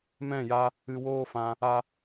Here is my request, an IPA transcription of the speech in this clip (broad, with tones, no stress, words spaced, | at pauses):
mɛ̃˦˨ja˧ | ɨ˧woː˦fã˧ | a˦